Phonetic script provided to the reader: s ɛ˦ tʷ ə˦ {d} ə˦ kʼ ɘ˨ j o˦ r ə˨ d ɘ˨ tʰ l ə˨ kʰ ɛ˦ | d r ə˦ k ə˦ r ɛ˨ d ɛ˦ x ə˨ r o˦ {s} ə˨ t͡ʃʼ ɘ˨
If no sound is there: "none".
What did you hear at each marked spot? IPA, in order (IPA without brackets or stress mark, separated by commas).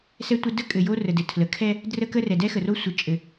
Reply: d, sʷ